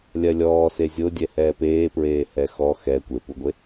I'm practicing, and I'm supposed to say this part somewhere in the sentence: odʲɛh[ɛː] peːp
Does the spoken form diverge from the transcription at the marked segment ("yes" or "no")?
no